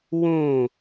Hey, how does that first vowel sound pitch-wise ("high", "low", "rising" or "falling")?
falling